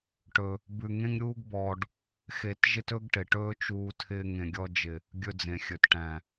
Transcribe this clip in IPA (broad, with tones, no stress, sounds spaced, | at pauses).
ʈ ɵ˧ | b ʉ˧ ŋ ẽ˦ ŋ ɾʲ uː˦ ɡ b ɔː˧ ɖ | x e˧ t ʒ ɪ˦ t ɵ˦ ɡ ʈ ɪ˨ ʈ ɵː˦ t͡ʃ uː˧ tʰ ɪː˧ ŋ ẽ˨ ɡʲ ɔ˧ d͡ʒ ɪ˨ | ɡʲ ɵ˧ d͡z ẽ˨ xʲ ɵ˨ t ʈ æ̃˨